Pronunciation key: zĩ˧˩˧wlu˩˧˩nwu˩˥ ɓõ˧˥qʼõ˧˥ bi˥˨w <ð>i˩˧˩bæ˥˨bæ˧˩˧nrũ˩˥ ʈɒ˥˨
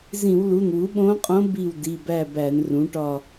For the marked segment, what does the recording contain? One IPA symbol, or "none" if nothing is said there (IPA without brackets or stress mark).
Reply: d